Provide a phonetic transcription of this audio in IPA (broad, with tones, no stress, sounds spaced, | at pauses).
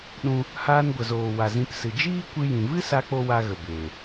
ɗ ũ˦ | h aː˧ n ɡʷ ə˨ z oː˨ w a˨ z ĩ˧ p s ɨ˨ d͡ʒ iː˦ kʷ ɨ˧ j ĩ˨ v ɨ˦ s a˦ k͡p o˦ w a˧ ɣ ə˨ b eː˨